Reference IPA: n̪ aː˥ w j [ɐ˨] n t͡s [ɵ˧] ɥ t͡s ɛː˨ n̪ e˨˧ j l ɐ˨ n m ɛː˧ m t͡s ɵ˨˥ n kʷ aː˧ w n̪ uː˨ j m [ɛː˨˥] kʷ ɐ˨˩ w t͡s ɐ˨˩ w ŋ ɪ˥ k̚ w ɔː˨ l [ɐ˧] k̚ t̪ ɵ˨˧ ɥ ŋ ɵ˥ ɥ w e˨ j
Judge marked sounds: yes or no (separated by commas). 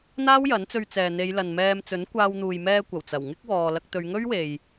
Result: no, yes, no, yes